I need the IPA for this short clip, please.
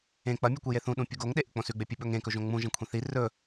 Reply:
ẽ k͡p ɐ mʲ u kʷ i j e θ ũ ɗ ũ pʲ u ɡ o ŋ ɗ e ʔ ɨ k͡p õ s ʉ ɡ͡b e pʲ ɨ ɓ ɵ ŋ ẽ k ɵ ʒ õ ŋ͡m ũ ʒ ɐ̃ kʷʰ ĩ θ i r ɵ

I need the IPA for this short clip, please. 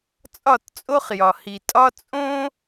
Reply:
t͡sʼ ɒ˦˨ t t͡sʼ o˦ χ j ɒ˨ h i˨ tʼ ɒ˦ t͡sʼ õ˦

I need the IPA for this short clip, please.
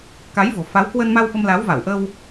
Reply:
k a˨˦ j v o̤˨˩ f a˨˦ w k w ə˧ n m a˧ w ɓ ə˧ m l a˨˦ w v a˧˩ w ʔ ə˧ w

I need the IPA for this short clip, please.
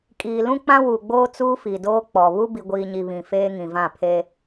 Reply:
kʼ iː˨ l ũ˦ k͡p ã˦ w u˨ ɡ͡b oː˦ t͡s uː˦ f i˨ d oː˦ k͡p ɔ˨ β u˦ b i˨ ɡʷ iː˨ ɲ i˨ β ĩ˨ f eː˦ ŋ ĩ˨ v ã˦˨ pʰ eː˦

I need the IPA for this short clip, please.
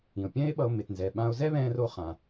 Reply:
ĩ˩ o̯ pʲ ɛ̃˥ e̯ ɓ ʌ˧ o̯ m e˩ t n z ɛ˩ ɓ ã˧ o̯ z ɛ˥ β ɛ̃ː˧ r o˧ χ ã˩

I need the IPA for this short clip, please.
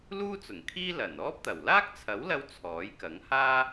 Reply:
l uː˥ t͡s ʊ˨˩ ŋ kʰ iː˥ l ɐ˨˩ n ɔː˥ p̚ t̪ ɐ˨˩ w l aː˥ k̚ t͡sʰ ɐ˨˥ w l ɐ˧ w t͡sʰ ɔː˨˥ j k ɐ˨˥ ŋ h aː˥

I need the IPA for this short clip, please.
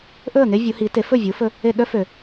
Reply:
ʔ ɵ˥˩ ə̯ ŋ e˥ vʲ u˩˥ h i˩˥ t e˩˥ f ɵ˥˩ vʲ u˩˥ f ɵ˧ | e˥˩ ɗ œ˥ f ø˩

